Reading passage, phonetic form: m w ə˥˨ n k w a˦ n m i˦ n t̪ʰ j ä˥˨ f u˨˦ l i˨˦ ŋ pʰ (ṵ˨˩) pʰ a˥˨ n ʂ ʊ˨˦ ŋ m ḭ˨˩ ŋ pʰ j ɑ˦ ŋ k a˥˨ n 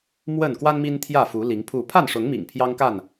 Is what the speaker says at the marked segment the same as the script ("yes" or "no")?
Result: no